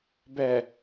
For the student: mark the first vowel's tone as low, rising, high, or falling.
low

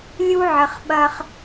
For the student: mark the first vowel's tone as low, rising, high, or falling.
high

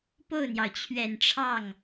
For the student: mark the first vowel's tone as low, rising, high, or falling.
falling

